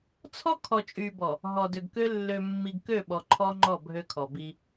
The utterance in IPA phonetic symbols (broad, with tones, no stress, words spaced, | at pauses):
t͡sʰɔ˦kʰɔ˨t͡ʃʼy˨bɔ˨ | ɦɔ˨dø˨ɡkø˦ lːø˨mːi˨ɡ kø˦˨ɓɔ˨ ǃʰɔ˦ŋ͡ǃɔ˦˨ bʱø˦kʰɔ˨bi˦